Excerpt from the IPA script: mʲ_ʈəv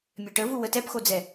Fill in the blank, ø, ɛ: ø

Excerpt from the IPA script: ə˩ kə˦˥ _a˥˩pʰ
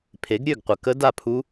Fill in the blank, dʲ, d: d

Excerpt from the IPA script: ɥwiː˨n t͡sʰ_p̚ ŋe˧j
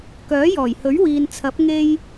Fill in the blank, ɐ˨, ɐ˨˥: ɐ˨˥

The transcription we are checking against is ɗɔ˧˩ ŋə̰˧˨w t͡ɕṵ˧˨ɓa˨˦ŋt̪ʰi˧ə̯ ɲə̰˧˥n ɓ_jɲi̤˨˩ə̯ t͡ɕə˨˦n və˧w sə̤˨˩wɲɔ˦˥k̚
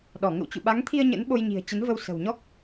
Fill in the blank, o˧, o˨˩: o˧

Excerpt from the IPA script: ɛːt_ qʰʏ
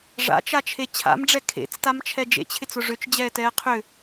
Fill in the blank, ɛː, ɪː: ɛː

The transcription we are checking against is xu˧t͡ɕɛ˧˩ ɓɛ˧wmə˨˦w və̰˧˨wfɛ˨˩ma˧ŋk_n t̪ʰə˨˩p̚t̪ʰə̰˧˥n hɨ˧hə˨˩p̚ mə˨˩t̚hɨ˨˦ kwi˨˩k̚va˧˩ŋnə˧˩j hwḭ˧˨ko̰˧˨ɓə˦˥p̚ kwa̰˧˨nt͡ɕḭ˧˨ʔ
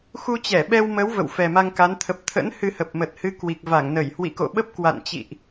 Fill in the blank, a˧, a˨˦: a˨˦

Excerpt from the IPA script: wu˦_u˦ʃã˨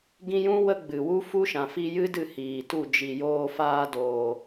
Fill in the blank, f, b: f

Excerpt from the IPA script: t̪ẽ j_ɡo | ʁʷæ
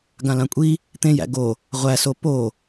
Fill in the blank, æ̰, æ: æ̰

